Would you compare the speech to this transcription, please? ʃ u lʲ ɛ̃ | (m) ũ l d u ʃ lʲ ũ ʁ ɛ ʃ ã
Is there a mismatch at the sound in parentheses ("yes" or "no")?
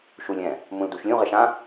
no